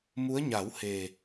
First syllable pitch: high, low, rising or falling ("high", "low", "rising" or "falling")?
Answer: rising